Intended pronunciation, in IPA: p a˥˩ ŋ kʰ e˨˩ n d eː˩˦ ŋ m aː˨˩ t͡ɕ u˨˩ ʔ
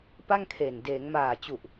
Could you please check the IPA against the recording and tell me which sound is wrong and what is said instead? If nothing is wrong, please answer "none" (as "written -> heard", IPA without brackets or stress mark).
none